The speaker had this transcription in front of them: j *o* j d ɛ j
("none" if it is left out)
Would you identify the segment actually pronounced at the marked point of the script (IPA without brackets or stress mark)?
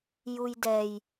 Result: u